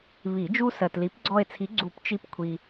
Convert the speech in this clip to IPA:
βi˨˩˦d͡ʒu˦sɜ˨tli˨˥p ɡ͡ǀɔ˦˨e̯ t͡sʰi˨˥ ɡ͡ǀu˨˩˦p t͡ʃi˦pkʷʰi˨

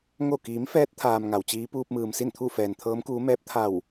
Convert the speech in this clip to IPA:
ŋo˧˩kiː˩˧m fɛː˧˥t̚t̪ʰaː˩m ŋa˩wt͡ɕiː˧˥ puː˧p̚mɯː˩msi˥˨nt̪ʰu˥˨ fɛː˩nt̪ʰɤː˧˥mkuː˧˥mɛː˧˥p̚ t̪ʰa˧˩w

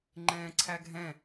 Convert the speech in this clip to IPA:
ŋ͡ǃɛ̃ːǀʰæɡʱɛ̃

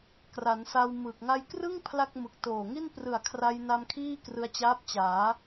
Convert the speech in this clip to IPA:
kra˩˦nsa˧w mɯ˨˩k̚ ŋa˧jkrɯ˥˩ŋ pʰla˥˩k̚mɯ˨˩k̚ toː˨˩ŋi˥˩n prɯ˨˩a̯kʰra˧jna˧m kʰiː˥˩krɯ˧a̯t͡ɕaː˦˥p̚ t͡ɕaː˩˦

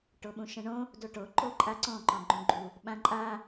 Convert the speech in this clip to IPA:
ʈoɓũʃə̃ɳõ | doʈo ǃoǃʼaǀɔ̃ ǃɔ̃ɡ͡ǃũɡ͡ǃu | ɓãǃʼa

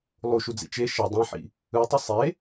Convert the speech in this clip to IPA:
lˠuʃud͡zḭ t͡ʃe ʃʌ dˤɛ̃ħḭ | ɯtˤʌ sˤe

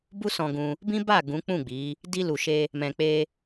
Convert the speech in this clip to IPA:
bu˦sɔ̃˧ɡũ˧ | bĩ˦ba˦˨ ɡũ˨˦k͡pũ˦˨ɡ͡bi˨˦ | di˧lu˨ʃe˧ | mɛ̃˨k͡pe˧

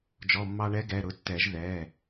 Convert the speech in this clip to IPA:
d͡ʒɔ˩˧˩mːɑ˧ɳɛ˧˥ɡɛ˩˧˩ ɾʊ˩˥tːɛ˨˩˦ʒ ðɛ˩˧˩

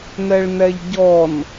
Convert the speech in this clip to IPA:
nɛɭnɛʎɟɔn

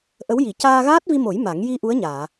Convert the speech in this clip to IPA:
ʔə˧˥wji˨˩˦ caː˧ɣaː˦˥t̚vi˧mo˨˩˦j ma˨˩˦ŋ ji˧ ʔu˧˥ə̯ɲaː˨˩˨

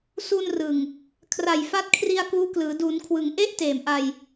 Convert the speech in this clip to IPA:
su˧nrɯ˨˩ŋ | kʰra˨˩jfa˦˥t̚kʰri˧a̯ kuː˦˥klɯː˩˦ du˩˦nkʰwɯ˩˦ŋ ʔe˥˩ʔ teː˨˩mʔa˧j

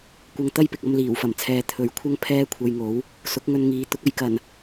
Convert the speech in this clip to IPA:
kʷɐ˧ŋt̪ɐ˥jpɪ˨k̚ɐ˧m liː˨˩wfɐ˨˩mt͡sʰɛː˨ t̪ʰɵ˨˥ɥkʷʰɐ˥ŋ pʰɛː˥kʷʰɐ˧jŋo˨˥w | sʊ˨˥k̚ŋɵ˧nŋiː˨˧ t̪ʊ˨˥k̚ɐ˨˧jkɐ˨˩n

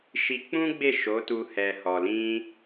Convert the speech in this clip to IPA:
ʃi˧k͡pũ˦ɡ͡be˦˨ ʃo˨˦tu˧ hɛ˨hɔ˨lĩ˧

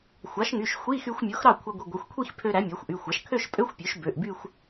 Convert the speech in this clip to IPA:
xʷɑ˩˥ʃŋy˩˧˩ʃxʷi˧˥˧ xy˧xʷmʲo˩˥x ɾɑ˥˩kʷʰɑ˧ɡʷi˩˧˩ɡʷɑ˩˧˩xʷ kʷʰi˥˧xpʰø˧ ɾæ˩˥mʲæ˩˥xʷʔy˩˧˩xʷɑ˩˥ʃ kʰø˥˧ʃpʼø˧˥˧xʷ pʲø˩˥ʃbø˩˧˩ʔby˥˧xʷ

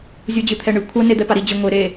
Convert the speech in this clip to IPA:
zʲud͡ʑɨt̪ʰɛɳɨ kʷʰɐ ned̪ɛpaɾi d͡ʑɨŋʷe ɾe

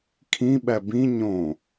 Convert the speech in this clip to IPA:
kʰĩ ɓæbĩ ɲõ

